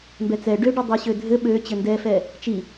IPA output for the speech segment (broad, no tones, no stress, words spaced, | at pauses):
mbɛt͡sɛ ɖøɖɛ dˤeɕødʱɘ ɓø t͡ɕɘndɛfɛ | t͡ʃi